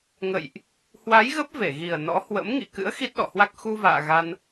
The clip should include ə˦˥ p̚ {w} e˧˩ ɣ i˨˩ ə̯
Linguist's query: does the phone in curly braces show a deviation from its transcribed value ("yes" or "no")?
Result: yes